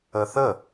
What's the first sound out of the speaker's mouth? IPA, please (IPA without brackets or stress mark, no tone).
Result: ə